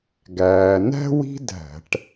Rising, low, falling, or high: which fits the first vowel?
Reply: low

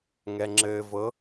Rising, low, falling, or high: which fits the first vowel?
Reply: low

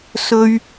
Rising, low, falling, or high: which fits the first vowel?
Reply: high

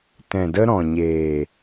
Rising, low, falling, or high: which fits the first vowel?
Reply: low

